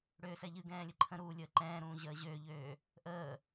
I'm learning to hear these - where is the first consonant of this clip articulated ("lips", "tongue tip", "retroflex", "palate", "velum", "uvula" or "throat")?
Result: retroflex